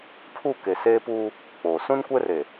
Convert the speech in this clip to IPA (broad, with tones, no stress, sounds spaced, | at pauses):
pʰ u˦˨ k e˨ s eː˦ p uː˦ | k͡p oː˨ s ũ˦ n kʷ ɛ˦ r e˨